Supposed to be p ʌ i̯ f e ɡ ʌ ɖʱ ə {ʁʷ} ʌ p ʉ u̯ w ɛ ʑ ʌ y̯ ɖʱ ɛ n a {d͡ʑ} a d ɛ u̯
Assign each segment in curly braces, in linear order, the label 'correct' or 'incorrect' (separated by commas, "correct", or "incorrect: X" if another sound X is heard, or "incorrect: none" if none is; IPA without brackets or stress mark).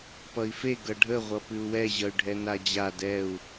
correct, correct